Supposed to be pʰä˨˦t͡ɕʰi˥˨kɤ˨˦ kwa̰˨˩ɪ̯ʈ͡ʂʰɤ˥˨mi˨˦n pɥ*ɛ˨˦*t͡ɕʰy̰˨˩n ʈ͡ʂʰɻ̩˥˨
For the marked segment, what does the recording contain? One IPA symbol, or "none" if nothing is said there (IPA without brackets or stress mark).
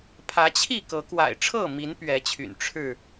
ɛ˨˦